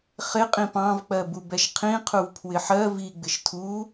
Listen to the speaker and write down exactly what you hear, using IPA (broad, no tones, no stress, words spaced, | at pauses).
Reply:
χɪ qʼĩpɑ̃vk͡pɜbu bɛʃqʰĩqʰuv pʰwɪħɜ viɡ͡bɪʃ tʰu